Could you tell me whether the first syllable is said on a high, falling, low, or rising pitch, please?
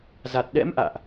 low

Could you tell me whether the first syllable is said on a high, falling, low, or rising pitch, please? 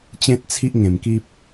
high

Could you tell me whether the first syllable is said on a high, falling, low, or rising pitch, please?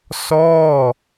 falling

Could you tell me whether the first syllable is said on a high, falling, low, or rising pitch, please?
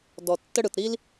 low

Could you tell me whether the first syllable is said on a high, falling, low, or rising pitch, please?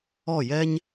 falling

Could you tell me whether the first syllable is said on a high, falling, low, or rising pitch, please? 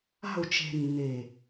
falling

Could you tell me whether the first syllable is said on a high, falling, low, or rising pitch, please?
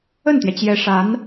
falling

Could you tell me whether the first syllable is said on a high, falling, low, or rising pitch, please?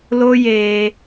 high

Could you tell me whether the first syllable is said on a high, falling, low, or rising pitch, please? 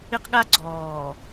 high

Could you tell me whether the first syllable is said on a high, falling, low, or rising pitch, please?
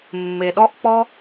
low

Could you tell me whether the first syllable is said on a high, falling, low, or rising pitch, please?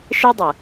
high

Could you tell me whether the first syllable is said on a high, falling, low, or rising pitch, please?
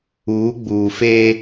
rising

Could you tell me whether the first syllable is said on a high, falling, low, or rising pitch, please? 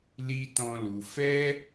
high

